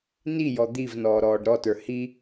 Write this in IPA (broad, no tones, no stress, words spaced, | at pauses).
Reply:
nijɔ d̪ivnɔːɾɔːɖ ɾɔtə˞ hi